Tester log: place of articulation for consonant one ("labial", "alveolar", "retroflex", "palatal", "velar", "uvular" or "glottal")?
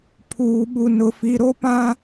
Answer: labial